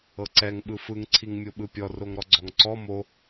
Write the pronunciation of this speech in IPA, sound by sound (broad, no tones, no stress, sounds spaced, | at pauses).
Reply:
ɤ ǀ ɛ ŋ ɓ ɯ f ɯ ŋ ǀʰ i ŋ mʲ o ɓ ɯ pʲ ɔ r o ŋ ɾ ɔ ɡ͡ǀ ɔ ŋ ǀ ɔ m o